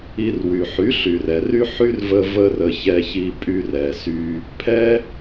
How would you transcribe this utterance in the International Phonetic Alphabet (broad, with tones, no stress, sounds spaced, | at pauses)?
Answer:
i˧ r w y˨ ħ y˨˦ ɬ y˨ r ɛ˨ r y˦ ħ y˦ r v ə˧ v ə˦ r ə˧ ç ɛ˧ ç i˧ pʼ y˧ r ɛ˨ s y˧ | pʰ ɛ˦